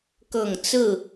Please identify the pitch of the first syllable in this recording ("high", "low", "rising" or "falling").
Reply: low